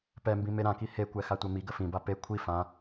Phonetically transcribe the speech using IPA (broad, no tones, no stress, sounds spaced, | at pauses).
p ɛ m b ĩ m e ɾ ã k i h e kʷ ɛ x a tʷ ɜ m i ɡ ə f ĩ b a p e kʷʰ i f ã